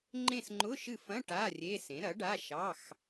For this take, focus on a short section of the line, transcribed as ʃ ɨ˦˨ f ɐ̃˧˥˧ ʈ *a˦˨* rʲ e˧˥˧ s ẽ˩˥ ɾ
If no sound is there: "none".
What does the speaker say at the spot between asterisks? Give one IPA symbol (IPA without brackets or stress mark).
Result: a˧˥˧